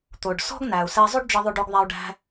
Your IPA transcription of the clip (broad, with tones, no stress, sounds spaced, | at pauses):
t̪ o˩ ɖ s ɔ̤˥ ɡ n æ˩ u̯ s ɛ˧ zˤ ʉ˥ ɖ d͡ʒ ə˧ ðˤ o˧ ɖ o˧ ɡ ðˤ æ˧ u̯ ɖ æ̤˧